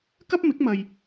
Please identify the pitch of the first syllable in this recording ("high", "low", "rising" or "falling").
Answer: high